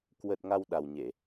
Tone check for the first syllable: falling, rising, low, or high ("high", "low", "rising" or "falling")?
low